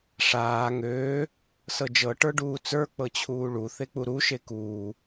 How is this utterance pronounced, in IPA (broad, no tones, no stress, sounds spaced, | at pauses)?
ʂ aː ŋ øː | s ɤ d͡ʒ ɤ ʈ ə˞ ɖ uː t͡s ə˞ k͡p ɤ t͡ɕʰ uː ɭ u θ e k͡p u ɾ u ʃ e k uː